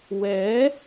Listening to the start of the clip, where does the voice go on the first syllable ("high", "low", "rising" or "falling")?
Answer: rising